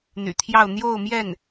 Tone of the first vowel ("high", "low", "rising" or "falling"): low